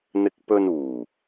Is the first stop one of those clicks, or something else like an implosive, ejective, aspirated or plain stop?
plain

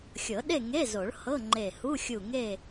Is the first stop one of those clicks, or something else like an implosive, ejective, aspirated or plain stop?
implosive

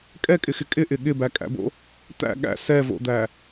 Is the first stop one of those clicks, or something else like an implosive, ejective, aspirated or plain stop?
ejective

